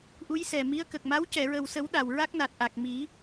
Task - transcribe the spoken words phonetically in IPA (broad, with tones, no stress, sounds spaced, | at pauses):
ʔ u˧˥ j s ɛ˨˩ m i˧˥ ə̯ k ə˨˩ k̚ m a˧˥ w c ɛ˨˩˨ ɹ ə˨˩ w s ə˨˩˦ w ɗ a˨˩ w ɹ a˦˥ k̚ n a˨˩ t̚ ʔ a˨˩ k̚ m i˨˩˦